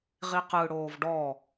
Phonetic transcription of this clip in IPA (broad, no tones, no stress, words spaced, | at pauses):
ʁiqɯ ɽoːvɖɔ